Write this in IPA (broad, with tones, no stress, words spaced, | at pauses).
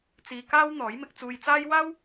t͡siː˧kaː˥w n̪ɔː˨˥jmɪ˨˥k̚t͡suː˧jt͡saː˥j waː˥w